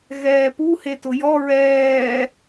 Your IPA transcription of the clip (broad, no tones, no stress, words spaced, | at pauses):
ɣɛːpu hetʊjɔ ɹɛː